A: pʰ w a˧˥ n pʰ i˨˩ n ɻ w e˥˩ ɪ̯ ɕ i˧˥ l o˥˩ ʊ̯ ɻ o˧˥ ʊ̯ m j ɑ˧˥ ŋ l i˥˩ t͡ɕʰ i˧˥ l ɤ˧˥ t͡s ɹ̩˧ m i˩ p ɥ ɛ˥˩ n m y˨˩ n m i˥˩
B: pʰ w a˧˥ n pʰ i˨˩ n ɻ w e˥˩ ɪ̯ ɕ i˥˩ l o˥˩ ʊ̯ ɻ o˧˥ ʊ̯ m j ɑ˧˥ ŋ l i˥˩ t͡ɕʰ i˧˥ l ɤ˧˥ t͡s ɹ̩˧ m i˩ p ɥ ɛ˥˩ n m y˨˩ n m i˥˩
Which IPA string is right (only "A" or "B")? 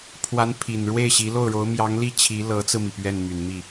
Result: A